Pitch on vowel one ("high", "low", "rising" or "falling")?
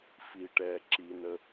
low